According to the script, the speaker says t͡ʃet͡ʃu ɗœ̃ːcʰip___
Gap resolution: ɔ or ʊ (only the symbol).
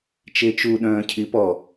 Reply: ɔ